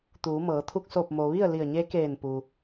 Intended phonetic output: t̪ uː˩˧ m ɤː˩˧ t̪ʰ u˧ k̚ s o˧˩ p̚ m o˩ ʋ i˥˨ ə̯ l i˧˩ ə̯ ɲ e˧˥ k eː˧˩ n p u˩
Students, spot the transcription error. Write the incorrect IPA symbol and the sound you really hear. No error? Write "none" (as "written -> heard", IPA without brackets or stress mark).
none